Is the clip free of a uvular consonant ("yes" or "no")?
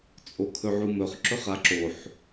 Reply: no